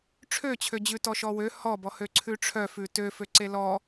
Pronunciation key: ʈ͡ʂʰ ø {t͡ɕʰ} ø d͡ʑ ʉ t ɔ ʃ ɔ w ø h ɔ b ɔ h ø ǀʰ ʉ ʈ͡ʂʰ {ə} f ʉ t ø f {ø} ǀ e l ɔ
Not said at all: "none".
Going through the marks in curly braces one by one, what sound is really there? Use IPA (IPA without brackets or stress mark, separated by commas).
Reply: t͡ɕʰ, œ, ø